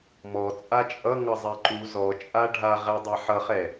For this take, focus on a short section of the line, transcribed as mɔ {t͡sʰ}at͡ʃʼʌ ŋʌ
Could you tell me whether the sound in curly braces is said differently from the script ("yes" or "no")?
yes